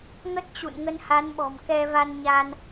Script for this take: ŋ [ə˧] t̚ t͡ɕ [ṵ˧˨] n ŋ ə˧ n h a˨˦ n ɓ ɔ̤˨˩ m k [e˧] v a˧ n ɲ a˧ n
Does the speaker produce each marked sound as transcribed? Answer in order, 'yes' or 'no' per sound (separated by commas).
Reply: no, yes, no